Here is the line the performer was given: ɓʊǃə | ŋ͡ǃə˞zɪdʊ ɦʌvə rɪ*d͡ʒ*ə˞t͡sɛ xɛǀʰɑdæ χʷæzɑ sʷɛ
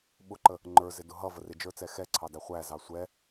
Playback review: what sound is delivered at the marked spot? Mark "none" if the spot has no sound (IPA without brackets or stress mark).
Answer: d͡ʒ